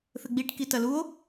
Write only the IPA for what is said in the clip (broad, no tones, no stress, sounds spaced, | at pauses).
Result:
θ ɘ ɡ͡b i ʈ k i t ɐ l u o̯